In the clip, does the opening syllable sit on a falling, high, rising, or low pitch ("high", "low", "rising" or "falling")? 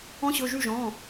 rising